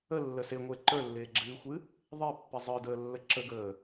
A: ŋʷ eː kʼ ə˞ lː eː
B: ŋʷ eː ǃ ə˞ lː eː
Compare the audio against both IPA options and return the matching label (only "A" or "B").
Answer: B